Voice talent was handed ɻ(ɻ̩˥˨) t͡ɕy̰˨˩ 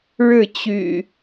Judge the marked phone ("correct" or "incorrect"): correct